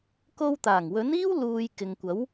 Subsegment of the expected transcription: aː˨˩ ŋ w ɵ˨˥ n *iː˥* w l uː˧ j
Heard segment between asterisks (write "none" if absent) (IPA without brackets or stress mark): iː˥